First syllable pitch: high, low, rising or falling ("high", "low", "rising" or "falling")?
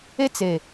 high